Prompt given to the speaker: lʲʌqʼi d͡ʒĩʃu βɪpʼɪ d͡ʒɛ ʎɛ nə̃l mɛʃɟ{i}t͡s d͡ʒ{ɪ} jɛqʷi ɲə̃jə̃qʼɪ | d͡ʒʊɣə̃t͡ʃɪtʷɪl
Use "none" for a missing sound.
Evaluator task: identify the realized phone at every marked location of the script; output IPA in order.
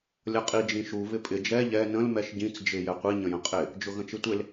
ĩ, ɪ

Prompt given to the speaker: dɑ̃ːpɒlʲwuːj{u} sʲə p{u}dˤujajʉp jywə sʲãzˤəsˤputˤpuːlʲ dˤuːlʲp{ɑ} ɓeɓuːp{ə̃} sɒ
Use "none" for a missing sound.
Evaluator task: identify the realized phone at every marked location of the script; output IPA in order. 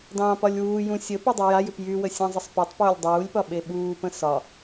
ũ, u, ɒ, ə̃

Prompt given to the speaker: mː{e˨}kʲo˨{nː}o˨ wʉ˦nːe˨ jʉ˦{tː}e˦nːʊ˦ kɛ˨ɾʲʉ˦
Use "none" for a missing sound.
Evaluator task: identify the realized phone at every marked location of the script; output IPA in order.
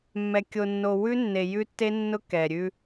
ɛ˨, nː, tː

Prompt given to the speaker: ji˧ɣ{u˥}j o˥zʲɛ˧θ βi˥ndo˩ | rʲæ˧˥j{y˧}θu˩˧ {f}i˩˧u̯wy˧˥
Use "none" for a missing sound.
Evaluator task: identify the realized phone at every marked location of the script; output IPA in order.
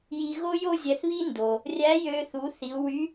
o˥, ø˧, θ

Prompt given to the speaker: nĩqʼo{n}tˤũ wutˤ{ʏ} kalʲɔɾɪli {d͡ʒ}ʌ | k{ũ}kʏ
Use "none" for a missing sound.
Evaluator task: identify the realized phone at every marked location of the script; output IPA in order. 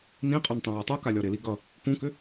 n, u, ɡ, ũ

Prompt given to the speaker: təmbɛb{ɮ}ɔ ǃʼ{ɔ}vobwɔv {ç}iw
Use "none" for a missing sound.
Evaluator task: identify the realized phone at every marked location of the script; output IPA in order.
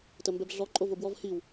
ɮ, o, h

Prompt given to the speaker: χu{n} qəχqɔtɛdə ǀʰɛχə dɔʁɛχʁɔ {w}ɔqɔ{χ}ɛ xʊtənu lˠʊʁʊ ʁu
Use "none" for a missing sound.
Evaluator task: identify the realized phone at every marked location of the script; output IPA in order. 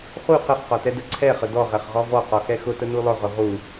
none, v, x

